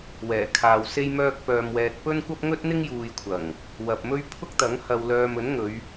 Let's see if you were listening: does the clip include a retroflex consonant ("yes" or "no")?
no